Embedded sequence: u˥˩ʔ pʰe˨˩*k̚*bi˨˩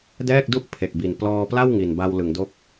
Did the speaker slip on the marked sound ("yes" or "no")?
no